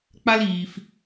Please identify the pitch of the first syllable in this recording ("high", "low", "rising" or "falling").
high